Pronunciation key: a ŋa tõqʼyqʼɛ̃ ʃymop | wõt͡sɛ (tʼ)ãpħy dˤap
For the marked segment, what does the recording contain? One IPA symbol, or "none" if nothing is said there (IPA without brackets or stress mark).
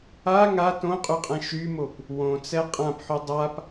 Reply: qʼ